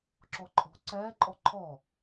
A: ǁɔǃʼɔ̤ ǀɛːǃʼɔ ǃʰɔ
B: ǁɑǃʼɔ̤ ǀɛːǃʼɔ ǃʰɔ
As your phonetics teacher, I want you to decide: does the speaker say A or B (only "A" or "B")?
A